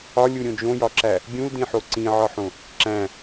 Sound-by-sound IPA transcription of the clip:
ɒ lʲ u ɾʲ õ d͡ʒ õ j ɒ ǁ æ | ɡʲ ũ l d ĩ ħ o ǀ ĩ ʕ ɒ ħ õ | ǁ æ̃

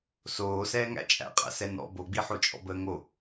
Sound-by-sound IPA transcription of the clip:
s oː s ɛː ŋ æ̰ t͡ʃʼ æ̰ qʼ æ̰ s ɛ n ɔ̰ b o ɡ͡b i ħ o t͡ʃʼ ɔ̰ b əː ŋ o

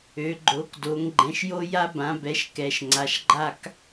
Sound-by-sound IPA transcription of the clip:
ø˩˧ ɡ͡ǃ o˩˧ k d o˩˧ ŋ ɡ͡ǃ ɛ̃˩˧ ʃ j o˦ j a˦ b ã˩˧ b ɛ˩˧ ʃ k ɛ˩˧ ʃ ŋ͡ǀ a˩˧ ʃ ɡ͡ǃ a˦ k

